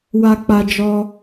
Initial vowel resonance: oral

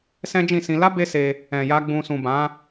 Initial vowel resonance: nasal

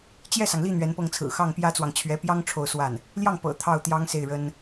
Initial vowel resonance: oral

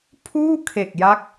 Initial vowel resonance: oral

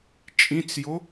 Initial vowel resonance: nasal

